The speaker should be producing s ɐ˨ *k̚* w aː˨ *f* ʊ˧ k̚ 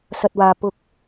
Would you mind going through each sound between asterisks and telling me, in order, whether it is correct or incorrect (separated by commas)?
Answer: incorrect, incorrect